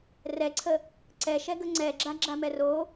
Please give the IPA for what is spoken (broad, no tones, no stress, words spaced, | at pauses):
rɛǀʰə | ǀɛʃɛɡə ŋ͡ǀɛɡ͡ǁaɡ͡ǁamɛ ro